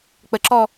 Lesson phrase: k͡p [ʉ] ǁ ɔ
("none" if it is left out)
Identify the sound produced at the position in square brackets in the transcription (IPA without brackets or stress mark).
ə